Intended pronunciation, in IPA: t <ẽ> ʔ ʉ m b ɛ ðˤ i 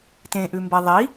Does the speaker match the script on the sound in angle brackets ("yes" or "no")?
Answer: yes